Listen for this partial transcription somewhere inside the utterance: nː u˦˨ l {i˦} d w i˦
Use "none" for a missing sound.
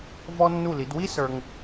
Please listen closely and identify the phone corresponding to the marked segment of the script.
i˨˦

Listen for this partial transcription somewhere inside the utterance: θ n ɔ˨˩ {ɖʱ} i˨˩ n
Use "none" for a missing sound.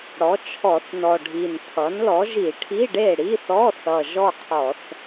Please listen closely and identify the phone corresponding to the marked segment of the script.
ɖʱ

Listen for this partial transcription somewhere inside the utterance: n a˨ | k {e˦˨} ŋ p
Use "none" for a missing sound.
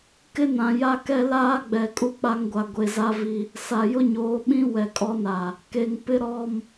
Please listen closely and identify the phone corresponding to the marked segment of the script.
e˨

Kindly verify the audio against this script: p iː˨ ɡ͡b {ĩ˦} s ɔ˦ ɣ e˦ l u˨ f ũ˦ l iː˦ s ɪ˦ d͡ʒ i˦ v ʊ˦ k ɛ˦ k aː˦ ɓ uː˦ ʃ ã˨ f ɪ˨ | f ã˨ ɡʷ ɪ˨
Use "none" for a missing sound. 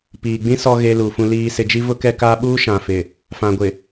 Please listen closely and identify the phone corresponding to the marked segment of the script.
ĩ˦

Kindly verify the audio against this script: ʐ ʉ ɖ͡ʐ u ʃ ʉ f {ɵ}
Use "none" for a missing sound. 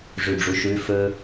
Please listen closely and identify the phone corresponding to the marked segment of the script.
ɵ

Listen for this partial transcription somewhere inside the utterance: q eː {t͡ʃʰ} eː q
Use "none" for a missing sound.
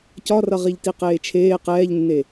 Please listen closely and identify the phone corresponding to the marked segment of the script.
t͡ʃʰ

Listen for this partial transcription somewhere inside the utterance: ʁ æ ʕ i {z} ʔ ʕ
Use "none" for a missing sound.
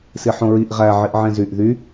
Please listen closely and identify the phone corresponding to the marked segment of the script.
none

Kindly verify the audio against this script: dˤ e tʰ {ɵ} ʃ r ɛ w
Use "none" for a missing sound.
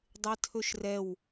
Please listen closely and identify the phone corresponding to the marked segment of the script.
ɵ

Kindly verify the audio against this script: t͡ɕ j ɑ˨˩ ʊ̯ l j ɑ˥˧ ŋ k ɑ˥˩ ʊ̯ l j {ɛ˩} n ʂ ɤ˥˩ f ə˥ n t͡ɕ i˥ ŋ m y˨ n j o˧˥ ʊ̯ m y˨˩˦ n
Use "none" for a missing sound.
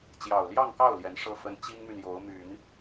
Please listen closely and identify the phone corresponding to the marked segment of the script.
ɛ˧˥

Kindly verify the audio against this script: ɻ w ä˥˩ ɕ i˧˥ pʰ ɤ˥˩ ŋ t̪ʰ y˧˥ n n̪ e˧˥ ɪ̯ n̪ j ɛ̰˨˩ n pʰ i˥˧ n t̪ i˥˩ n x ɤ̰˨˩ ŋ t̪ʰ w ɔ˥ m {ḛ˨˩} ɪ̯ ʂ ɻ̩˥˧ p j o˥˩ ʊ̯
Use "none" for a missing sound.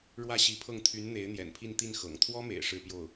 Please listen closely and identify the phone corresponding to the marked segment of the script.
ḛ˨˩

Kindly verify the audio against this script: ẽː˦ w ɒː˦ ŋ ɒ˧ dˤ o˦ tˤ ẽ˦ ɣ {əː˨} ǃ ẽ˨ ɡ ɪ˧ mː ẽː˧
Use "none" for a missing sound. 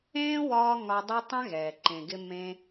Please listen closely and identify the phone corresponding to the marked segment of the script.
ɛː˨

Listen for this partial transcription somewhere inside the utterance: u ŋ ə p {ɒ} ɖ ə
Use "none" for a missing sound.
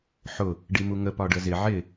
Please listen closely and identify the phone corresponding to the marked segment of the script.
ɒ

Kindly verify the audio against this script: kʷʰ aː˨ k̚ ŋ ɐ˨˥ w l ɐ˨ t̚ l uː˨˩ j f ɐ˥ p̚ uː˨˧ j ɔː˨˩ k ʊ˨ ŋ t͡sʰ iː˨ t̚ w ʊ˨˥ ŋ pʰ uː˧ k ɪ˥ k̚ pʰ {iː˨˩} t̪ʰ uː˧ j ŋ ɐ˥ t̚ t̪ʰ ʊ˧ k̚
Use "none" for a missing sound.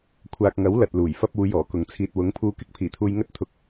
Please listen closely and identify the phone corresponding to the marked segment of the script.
iː˨˩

